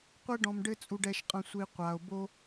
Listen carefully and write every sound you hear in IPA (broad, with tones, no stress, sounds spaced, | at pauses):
qʷ ɛ˦ ɖ ɔ̃˧ m ɖ ɘ˦ t͡sʼ u˧ ɖ ɛ˧ ʃ qʼ ɐ̃˧ sʷ i˧ qʷ a˨ o̯ b o˧